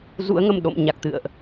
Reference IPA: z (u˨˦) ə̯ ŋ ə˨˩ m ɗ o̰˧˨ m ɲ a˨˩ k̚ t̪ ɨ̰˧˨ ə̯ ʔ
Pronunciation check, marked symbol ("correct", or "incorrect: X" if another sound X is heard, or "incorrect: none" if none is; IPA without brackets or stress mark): incorrect: ṵ˧˥